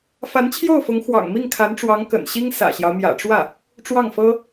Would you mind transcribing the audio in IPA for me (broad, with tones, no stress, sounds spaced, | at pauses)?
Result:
f a˧˥ n t͡ɕʰ j o˥˩ ʊ̯ f ʊ˧˥ ŋ x w ɑ̰˨˩ ŋ m i˥˩ ŋ kʰ a˧˥ n ʈ͡ʂ w ɑ˧˥ ŋ k ə̰˨˩ n ɕ i˥ ŋ s ä̰˨˩ ɕ j ɑ˦ ʊ̯ m j ä̰˨˩ ʈ͡ʂ w ä˥˩ | ʈ͡ʂ w ɑ˥˩ ŋ f ɤ˥